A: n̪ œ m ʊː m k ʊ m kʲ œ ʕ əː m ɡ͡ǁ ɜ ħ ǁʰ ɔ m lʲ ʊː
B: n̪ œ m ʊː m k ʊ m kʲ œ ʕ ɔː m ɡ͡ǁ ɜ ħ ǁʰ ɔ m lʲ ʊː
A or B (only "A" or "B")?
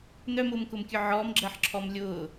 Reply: B